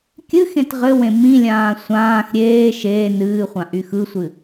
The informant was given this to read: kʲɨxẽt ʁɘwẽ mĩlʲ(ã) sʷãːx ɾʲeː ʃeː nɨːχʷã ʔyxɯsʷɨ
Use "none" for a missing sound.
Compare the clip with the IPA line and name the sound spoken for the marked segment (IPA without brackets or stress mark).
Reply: ãː